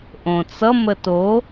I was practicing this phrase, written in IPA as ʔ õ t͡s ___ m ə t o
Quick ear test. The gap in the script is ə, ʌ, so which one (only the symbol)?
ʌ